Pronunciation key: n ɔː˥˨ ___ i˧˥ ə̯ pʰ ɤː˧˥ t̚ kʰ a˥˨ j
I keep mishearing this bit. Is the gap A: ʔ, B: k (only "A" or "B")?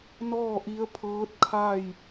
A